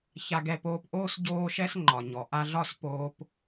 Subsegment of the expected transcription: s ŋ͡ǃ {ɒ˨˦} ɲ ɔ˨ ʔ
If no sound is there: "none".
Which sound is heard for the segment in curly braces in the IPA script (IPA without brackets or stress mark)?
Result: ɒ˨